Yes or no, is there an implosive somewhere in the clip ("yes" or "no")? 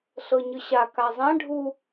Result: no